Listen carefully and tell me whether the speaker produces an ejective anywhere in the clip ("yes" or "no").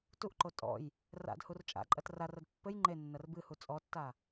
yes